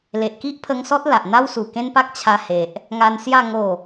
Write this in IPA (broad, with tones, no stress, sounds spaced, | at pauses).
l e˨ ʔ k i˦ ʔ pʰ ə˧ ŋ s ɔ˦ t̚ l a˨ ʔ n̪ a˦ w s u˨˩ k ẽ˦ n p a˦ k̚ t͡ɕʰ a˧ h e˨ ʔ | ŋ a˧ n s j a˥˧ ŋ o˥˧